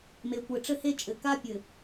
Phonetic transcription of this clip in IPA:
m e˨ kʷ ɘ˨ ʈ͡ʂ ɘ˦ h e˦ t͡ʃʼ ɘ˨ k a˦ pʲ ɘ˨

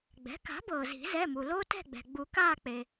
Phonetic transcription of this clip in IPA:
ɡ͡b ɛ̤˩˥ k a̤˩˥ b ɤː˩ z i̤˨˩˦ z ɛ˩˧˩ m u˩ l oː˦ t ɛ̤˦˨ ɡ͡b ɛ̤˩ ɡ͡b u˨˩˦ k aː˦˨ k͡p e˩

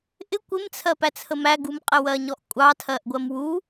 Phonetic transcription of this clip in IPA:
ʔ ɪ kʷ ɪ m t͡sʰ ɜ p æ t͡sʰ ə m æ ɡ u m qʼ ɪ w ɜ ɲ ɔ ʔ kʷʼ ɑ tʰ ɜ ʔ ɡʷ ɜ m w u

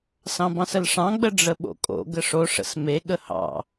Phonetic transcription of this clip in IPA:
s ɑ̃ b ɑ̃ s ə l ʂ ɑ̃ ɡ͡b ə ɖ͡ʐ ə ɓ o̰ kʼ o̰ ɡ ə ʂ o ʂ ə̰ s m e ɠ ə h ɑ̰

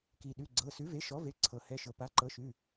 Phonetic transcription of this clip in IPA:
k i˩ ɗ ʉ˩˧˩ ɡ͡ǀ ɤ˩˧˩ s ʉ˩˥ v e˩˥ ʃ ɔ˩˥ v e˩˧˩ ǀʰ ɤ˩ h ɛ˩˧˩ ʃ ɤ˩ p a˩˥ ǃ ɤ˩˥ ʃ ʉ˩˧˩

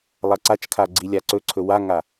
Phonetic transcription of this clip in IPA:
lˠ a ǀ a t͡ʃ kʰ a ɡ͡ǀ i lʲ a ǀ ɵ ǀʰ ɵ w a ŋ a

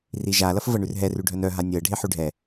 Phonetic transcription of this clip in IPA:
r i ʒ a l ɐ f v ɤ ɳ ʉ r ɦ ɛ r ʉ ɖʱ œ n œ ɦ a nʲ ɤ ɖʱ e ħ ʉ ɖʱ ɛ

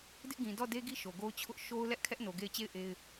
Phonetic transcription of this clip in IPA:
d ɪ˦ ʔ ɡ ĩ˨ d ɔ˦˨ d e˦ ɡ i˦ ʃ o˨ ɡ o˦ ʊ̯ t͡ɕʰ ʊ˦ ʔ ʃ o˦ ʊ̯ l ɛ˦ ʔ kʰ ɛ˦ ʔ n o˨ ɡ e˦˨ ɪ̯ t͡ɕ e˦˨ ɪ̯ ʔ e˦ ɪ̯

